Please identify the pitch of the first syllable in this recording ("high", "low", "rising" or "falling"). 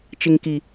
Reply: low